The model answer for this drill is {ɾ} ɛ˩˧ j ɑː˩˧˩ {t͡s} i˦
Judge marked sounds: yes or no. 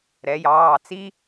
yes, yes

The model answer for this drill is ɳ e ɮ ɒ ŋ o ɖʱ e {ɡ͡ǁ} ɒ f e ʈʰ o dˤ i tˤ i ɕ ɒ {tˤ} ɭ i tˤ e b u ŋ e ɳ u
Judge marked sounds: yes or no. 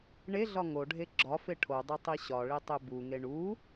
yes, no

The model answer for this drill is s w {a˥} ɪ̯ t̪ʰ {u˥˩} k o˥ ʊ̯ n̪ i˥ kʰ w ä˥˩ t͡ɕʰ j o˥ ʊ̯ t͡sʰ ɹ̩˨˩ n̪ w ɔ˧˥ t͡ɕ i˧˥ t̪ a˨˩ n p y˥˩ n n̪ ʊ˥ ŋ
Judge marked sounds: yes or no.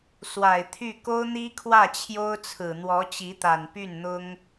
no, no

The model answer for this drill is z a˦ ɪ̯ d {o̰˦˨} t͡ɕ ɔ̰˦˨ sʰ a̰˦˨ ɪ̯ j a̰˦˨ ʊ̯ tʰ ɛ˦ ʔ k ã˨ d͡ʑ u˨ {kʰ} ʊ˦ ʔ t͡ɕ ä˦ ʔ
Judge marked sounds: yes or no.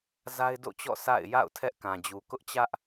yes, no

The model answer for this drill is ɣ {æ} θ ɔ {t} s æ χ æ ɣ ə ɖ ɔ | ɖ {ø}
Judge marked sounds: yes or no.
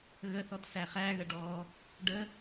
no, yes, no

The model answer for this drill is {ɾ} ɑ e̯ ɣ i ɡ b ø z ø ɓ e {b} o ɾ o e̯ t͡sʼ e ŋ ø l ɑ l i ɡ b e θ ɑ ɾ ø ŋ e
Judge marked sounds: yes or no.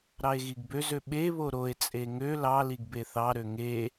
yes, no

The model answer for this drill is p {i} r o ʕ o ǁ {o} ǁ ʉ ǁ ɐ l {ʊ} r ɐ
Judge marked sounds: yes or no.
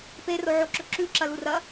no, no, no

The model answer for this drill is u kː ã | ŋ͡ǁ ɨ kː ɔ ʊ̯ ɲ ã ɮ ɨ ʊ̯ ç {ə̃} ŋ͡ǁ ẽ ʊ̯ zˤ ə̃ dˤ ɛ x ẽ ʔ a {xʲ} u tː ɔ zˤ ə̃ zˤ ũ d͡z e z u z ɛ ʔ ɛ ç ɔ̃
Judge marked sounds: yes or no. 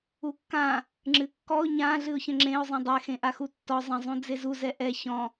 yes, no

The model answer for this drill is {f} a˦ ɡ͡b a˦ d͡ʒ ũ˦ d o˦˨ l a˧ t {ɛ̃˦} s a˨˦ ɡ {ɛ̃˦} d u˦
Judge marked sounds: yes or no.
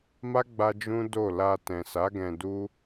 no, no, no

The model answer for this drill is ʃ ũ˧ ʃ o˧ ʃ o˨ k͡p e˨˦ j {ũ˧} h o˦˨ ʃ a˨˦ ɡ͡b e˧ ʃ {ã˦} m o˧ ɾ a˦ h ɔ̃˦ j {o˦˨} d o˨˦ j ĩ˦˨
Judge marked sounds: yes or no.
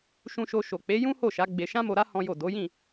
no, yes, yes

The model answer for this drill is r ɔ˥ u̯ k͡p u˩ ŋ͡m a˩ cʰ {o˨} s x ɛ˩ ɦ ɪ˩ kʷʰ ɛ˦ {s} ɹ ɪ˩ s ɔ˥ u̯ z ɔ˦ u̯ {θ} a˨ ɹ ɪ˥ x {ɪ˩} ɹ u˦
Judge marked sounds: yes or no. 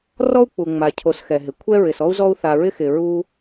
yes, no, yes, yes

